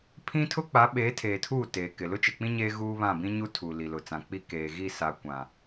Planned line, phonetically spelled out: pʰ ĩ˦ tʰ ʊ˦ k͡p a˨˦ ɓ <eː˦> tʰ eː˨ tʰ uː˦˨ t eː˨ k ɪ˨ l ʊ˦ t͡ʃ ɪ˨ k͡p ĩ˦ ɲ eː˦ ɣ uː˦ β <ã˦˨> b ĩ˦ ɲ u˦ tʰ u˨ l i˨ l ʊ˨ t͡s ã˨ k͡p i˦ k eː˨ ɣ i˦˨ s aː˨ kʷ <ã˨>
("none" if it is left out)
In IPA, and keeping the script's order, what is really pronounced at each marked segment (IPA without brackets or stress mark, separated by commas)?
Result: eː˨˦, ã˦˨, ã˨